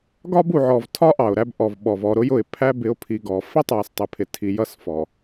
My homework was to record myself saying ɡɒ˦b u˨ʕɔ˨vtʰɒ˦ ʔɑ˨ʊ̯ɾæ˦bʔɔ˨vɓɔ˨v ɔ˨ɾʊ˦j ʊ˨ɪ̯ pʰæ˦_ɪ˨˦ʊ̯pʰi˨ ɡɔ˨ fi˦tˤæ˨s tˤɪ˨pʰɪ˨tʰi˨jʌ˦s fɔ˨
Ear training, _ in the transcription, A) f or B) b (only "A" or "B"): B